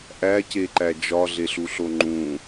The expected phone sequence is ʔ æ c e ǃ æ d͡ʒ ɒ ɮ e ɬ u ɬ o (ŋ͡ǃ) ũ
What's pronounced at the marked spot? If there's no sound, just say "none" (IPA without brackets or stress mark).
ŋ͡ǃ